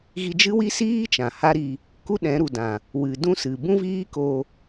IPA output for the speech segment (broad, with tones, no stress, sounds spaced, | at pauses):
ɣ i˧ d͡ʒ ɨ˦ w i˦ s iː˦ t͡ʃ ã˨ h a˦ ɾ i˧ | k u˦ ɗ ɛ̃˨˦ ɾ u˨ d ã˨ | w ɨ˨ d ũ˦ s ɨ˨ b ũ˦ v iː˦ k o˧